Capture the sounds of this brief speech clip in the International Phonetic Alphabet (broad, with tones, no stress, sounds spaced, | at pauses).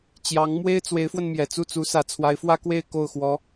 t͡ɕ j ɑ˧˥ ŋ m w e˥ ɪ̯ t͡s w e˧˥ ɪ̯ f w ə˧ n m j ɛ˨˩ t͡s u˥˩ t͡s u˧˥ s ä˨˩ t͡sʰ w a˧˥ ɪ̯ f w ä˥ k w e˥˧ ɪ̯ k o˥˩ ʊ̯ x w ɔ˧˥